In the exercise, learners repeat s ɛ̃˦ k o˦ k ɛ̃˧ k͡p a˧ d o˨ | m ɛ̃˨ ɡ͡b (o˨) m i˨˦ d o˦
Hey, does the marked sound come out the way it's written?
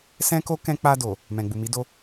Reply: no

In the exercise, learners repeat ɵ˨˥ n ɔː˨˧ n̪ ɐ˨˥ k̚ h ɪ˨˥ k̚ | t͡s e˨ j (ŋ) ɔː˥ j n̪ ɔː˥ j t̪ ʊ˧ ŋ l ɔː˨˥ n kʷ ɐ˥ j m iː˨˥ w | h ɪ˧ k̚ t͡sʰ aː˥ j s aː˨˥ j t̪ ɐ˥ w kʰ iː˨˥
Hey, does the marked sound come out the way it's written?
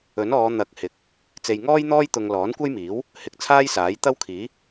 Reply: yes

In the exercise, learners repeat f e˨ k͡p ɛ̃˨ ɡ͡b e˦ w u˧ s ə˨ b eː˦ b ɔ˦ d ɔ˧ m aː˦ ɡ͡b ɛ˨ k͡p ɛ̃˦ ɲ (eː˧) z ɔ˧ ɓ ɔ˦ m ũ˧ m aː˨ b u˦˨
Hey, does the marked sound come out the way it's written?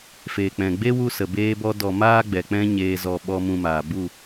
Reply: yes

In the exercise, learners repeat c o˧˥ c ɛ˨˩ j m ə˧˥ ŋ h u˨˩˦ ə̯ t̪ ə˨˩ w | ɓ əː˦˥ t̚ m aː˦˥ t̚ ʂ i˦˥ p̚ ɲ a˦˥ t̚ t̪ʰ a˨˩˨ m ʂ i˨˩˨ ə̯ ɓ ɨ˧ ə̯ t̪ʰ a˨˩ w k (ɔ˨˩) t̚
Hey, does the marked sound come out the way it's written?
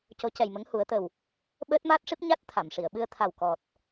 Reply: yes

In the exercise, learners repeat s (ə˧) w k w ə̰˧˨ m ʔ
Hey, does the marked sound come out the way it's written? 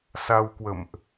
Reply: no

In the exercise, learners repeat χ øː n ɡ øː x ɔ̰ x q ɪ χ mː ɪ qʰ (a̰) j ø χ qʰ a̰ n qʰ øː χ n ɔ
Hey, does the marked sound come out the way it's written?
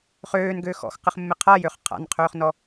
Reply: no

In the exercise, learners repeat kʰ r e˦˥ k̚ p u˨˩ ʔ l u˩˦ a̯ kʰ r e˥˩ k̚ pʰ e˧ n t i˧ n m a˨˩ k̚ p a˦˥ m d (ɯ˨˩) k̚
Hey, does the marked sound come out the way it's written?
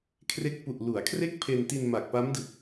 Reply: yes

